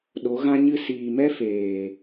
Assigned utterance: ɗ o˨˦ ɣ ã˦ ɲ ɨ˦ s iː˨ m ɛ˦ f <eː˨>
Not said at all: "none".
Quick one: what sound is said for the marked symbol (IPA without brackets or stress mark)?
eː˨